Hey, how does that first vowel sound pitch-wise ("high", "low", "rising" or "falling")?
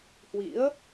rising